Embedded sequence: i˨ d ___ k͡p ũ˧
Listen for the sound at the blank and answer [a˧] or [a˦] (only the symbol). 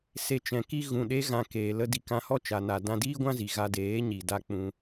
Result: a˧